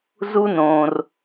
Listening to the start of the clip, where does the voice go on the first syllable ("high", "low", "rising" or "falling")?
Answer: high